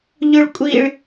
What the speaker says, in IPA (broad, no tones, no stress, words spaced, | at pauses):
ʎʊɭkʷʼiɭ